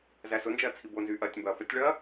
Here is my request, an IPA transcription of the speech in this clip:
z æ s ʊ n d͡ʒ ɐː t͡sʰ i b o n z yː ʔ ɐː tʲ m b ɐː f ɐ tʲ ɭ ɐː

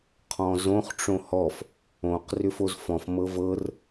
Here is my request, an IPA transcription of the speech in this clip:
qʰ ɔ̃ z õ χ ʈ͡ʂ õ h ɔ f | õ q r ʏ f o z f ɔ̃ f m ɤ v ɤ r

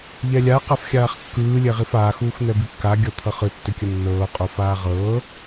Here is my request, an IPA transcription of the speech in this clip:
ʎ ɛ lʲ a q a f xʲ aː χ kː ɯː lʲ ɛ ʁ i f aː x uː x n̪ ɛ b i kː a ɡʲ ʌ t̪ʰ ʌ χ ɯ tː ʏ kʲ ə nː ɤː qʼ o f aː ʁ ɤː

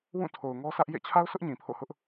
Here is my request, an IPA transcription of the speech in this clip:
w ũ˦˨ tʰ o˨ ʊ̯ ŋ ɔ˦ s ä˦ ʔ j ḛ˦˨ t͡ɕʰ a˦ ʊ̯ s ʊ˦ ʔ ɲ ĩ˨ pʰ o̰˦˨ h ʊ˦ ʔ

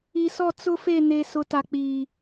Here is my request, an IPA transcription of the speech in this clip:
i˨ s ɔ˦˨ t͡s ʊ˦ f e˦˨ n e˨ s ʊ˨ t a˨ k͡p iː˨

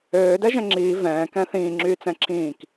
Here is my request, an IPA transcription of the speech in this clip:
øː d ɛ ʒ ɛ̃ ŋ͡ǁ iː v ɛ̃ː k ɛ̃ θ ĩː ŋ͡ǁ yː t͡s ɛ̃ ǁʰ ĩː k

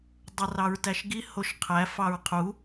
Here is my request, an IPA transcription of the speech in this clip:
dˤ ə r ɑ ɹ t æ ʃ ɡ i h o ʃ qʰ æ f ɑ ɹ qʰ u

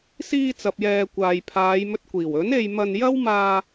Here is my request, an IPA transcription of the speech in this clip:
s iː˧ t͡s ɐ˨ p̚ j ɛː˨ kʷ aː˨ j pʰ aː˨˧ j m ɵ˧ t̚ kʷ iː˨˩ w ɵ˨˥ n e˧ j m ɐ˧ n j ɐ˥ w m aː˧

